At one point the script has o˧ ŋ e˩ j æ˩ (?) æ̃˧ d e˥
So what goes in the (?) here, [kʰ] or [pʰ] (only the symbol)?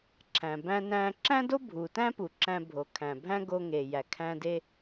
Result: kʰ